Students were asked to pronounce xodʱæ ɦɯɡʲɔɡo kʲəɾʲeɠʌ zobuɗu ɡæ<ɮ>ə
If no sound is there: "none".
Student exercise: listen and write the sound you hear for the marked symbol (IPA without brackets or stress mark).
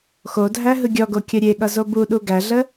ɮ